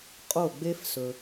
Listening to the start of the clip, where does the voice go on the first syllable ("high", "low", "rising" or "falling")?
falling